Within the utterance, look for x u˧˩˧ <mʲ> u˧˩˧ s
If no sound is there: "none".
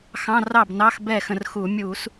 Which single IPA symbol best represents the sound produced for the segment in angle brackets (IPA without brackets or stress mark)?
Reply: mʲ